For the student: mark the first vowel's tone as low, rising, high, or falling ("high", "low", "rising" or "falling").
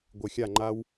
low